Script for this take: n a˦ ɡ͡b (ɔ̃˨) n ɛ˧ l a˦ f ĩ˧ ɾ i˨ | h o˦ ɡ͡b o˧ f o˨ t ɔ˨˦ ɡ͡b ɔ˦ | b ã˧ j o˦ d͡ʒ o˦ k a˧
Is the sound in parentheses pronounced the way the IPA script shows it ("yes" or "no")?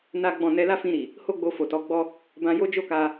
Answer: no